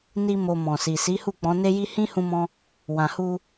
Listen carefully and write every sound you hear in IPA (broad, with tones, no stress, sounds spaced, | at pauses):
n i˦ m o˧ m ɔ̃˨ s i˨ s i˨˦ h u˦˨ k͡p ɔ̃˨˦ n e˦ j i˦ h ĩ˦ h ũ˦ m ɔ̃˦ | w ã˨ h u˧